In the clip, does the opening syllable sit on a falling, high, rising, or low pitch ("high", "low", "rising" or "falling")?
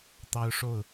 high